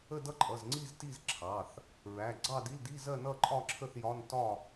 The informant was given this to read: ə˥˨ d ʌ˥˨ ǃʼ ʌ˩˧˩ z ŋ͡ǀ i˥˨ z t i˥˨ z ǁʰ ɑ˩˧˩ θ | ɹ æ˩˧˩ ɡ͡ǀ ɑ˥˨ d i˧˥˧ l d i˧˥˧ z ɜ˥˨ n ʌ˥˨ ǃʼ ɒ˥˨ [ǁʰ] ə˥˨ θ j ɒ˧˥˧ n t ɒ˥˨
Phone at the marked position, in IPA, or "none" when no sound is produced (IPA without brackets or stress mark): ǁʰ